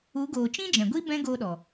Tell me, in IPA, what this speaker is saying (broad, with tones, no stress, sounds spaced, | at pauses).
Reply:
u˨˦ ɡ oː˨ t͡ʃ ĩ˦ d͡ʒ ɛ̃˨ ɡʷ i˦ b ɛ̃˦ ɡ oː˧ ɗ ɔ˨